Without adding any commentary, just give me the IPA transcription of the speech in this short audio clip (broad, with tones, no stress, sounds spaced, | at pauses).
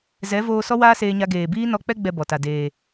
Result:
z ɛ˨˦ v oː˧ s ɔ˦ w aː˦ s eː˧ ɲ a˧ ɡ eː˨ b iː˦ n ɔ˧ k͡p ɛ˦ ɡ͡b ɛ˦ b ɔ˨ t a˨ d eː˨